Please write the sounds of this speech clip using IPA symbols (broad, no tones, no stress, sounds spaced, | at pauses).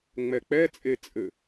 ŋ͡m ɛ k͡p ɛ t͡sʼ e t͡sʼ ɘ